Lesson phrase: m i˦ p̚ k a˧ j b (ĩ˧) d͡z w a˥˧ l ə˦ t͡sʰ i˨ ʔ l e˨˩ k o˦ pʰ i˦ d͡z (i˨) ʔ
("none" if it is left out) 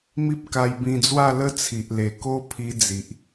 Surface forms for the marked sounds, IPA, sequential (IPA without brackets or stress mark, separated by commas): ĩ˧, i˨